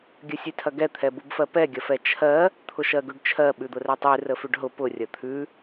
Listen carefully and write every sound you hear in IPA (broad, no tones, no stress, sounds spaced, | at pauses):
ɡʲ ə sʲ ʉ tʰ ɐ ɡ ɛ t̪ʰ ɛ b u b f ɜ p ɛ ɡʲ ɐ f ɛ t͡ʃʰ ɜ | t̪ʰ ʊ ʃ ɜ ɡ ʉ ɖ t͡ʃʰ ɜ ɓ ʉ d̪ ʊ r ɛ tˤ ʉ r ə f ʉ ɖ ɦ ʊ p ʊ rʲ ɐ t̪ʰ ʉ